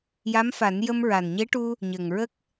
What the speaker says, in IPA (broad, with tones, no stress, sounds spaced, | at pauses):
j a˧˥ m f a˨˩˦ n j ə˧ m ɹ a˨˩ n ɲ e˧˥ ʈ u˧ | ɲ ə˨˩ ŋ ɹ ə˦˥ k̚